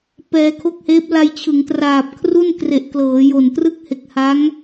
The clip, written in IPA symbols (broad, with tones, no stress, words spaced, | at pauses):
pɛː˧kʰo˥˩k̚heː˦˥p̚ la˧jt͡ɕʰɯ˩˦ŋtraː˨˩p̚ kʰru˥˩nkre˨˩ʔ klɤː˩˦jo˨˩n trɯ˥˩k̚he˨˩k̚ha˦˥ŋ